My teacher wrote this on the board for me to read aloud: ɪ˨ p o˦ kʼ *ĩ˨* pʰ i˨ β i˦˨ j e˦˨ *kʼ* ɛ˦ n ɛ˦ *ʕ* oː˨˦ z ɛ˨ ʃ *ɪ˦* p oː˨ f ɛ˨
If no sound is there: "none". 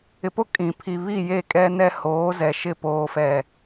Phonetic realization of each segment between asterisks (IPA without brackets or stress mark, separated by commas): ĩ˨, kʼ, h, ɪ˦˨